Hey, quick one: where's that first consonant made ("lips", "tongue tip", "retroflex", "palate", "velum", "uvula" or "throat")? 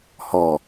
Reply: throat